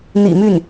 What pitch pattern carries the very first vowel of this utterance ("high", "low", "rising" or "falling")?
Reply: low